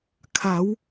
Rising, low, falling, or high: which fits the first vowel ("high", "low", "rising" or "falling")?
rising